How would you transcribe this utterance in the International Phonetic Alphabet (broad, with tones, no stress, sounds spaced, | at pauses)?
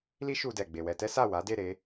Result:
l i˦ ʃ u˧ d ɛ˨ ɡ͡b e˨ w ɛ˧ t ɛ˦ s a˦˨ w a˨˦ d e˦˨ ɾ e˧